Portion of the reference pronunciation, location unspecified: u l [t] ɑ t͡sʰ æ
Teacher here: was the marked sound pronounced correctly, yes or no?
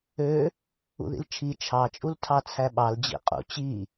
no